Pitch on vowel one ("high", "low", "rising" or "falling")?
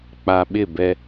low